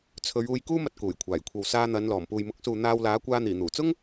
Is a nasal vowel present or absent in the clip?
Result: absent